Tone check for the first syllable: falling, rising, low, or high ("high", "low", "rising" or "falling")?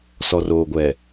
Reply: low